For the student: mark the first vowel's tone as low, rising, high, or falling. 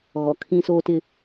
low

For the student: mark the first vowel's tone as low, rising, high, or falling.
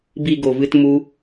low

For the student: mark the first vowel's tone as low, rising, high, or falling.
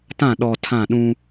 falling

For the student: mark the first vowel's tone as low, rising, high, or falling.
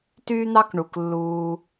high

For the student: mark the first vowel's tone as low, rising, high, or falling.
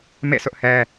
falling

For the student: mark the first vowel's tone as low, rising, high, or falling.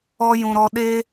high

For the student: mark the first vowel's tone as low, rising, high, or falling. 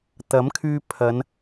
rising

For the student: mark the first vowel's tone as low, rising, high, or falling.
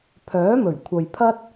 rising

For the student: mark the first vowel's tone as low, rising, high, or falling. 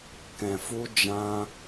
low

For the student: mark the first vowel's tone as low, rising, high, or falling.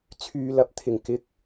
low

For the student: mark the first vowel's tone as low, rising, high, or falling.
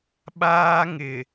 high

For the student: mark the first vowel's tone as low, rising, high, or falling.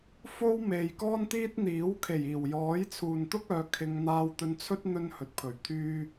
high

